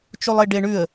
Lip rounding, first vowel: rounded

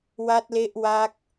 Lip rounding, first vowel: unrounded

